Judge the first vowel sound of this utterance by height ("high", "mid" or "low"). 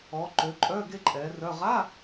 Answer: mid